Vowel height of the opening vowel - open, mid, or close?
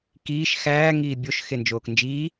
close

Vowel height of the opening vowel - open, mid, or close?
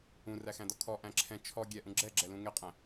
close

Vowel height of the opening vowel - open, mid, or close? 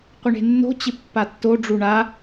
close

